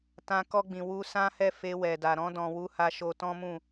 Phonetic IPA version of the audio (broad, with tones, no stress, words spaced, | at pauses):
tã˧ kɔ˧ɡ͡bĩ˨ wu˧sã˦hɛ˦˨ fe˧wɛ˨da˨ ɾɔ̃˧dɔ̃˨wu˨˦ ha˧ʃo˧ tɔ̃˦mũ˦˨